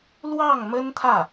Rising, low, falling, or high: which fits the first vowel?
falling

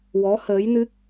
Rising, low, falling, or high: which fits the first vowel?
rising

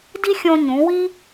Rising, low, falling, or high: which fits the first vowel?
high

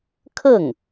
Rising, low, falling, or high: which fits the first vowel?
falling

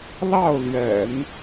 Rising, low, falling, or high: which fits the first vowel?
falling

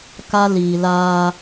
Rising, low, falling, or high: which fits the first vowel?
high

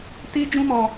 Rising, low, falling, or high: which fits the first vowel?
high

